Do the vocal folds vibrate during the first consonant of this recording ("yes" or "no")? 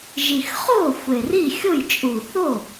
yes